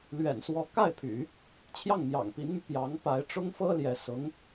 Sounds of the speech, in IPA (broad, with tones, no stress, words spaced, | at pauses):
lɥɛ̰˨˩nswɔ˧˥ ka˥˩ɪ̯pʰy̰˨˩˦ | t͡ɕʰjɑ˥˩ŋmjɑ̰˨˩ŋpi˧˥nmy˧ pjɑ˧˥ŋ pa˧˥ɪ̯ ʈ͡ʂʊ˥ŋfɤ˥ljɛ˧˥ sʊ˧˥ŋ